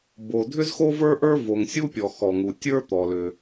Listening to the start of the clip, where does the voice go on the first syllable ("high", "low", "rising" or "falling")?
low